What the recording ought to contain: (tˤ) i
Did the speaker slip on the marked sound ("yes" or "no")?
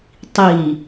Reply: no